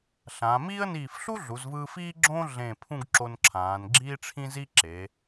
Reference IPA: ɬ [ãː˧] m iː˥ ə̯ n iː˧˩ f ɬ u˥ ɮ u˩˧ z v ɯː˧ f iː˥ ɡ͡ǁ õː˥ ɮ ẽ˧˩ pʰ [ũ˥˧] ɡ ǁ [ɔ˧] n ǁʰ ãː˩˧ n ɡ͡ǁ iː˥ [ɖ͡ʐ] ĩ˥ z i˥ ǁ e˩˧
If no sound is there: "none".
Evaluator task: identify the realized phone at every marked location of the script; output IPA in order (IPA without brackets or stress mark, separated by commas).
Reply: ãː˩˧, ũ˥˧, o˧, ʈ͡ʂʰ